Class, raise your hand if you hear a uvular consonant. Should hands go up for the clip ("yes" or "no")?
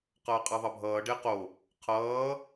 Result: yes